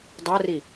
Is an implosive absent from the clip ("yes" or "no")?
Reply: yes